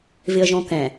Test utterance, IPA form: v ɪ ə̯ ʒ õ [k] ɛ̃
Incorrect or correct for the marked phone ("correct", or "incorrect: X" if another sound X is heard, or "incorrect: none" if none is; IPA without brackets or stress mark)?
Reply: correct